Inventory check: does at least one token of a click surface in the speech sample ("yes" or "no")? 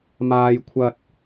no